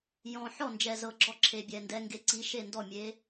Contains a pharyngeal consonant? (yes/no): yes